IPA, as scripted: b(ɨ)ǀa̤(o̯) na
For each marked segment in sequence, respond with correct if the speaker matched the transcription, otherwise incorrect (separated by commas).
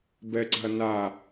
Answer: incorrect, incorrect